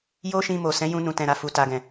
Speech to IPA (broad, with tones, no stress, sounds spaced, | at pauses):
j o˦ ʃ ĩ˧ m o˨ s ɛ̃˨˦ j ũ˧ n ũ˨ t ɛ̃˨ ɾ a˨ f u˨ t a˨ ɡ ɛ̃˨